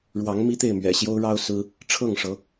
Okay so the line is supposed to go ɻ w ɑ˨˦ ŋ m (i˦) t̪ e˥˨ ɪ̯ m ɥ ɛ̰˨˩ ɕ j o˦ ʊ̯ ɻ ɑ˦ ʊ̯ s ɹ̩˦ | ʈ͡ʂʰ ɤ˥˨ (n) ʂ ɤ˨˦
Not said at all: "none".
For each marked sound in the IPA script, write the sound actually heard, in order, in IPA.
i˦, ŋ

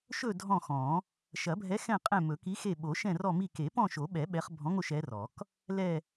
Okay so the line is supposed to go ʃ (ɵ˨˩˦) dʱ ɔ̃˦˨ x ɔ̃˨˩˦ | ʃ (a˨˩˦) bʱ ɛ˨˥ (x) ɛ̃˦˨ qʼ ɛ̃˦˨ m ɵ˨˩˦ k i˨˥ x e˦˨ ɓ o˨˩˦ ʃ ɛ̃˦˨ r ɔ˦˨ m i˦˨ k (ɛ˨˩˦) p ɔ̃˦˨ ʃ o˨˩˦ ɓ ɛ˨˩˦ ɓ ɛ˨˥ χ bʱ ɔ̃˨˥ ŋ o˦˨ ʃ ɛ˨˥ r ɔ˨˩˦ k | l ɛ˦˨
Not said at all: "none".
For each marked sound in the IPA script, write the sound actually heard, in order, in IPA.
ɵ˦˨, ɐ˨˩˦, x, e˨˩˦

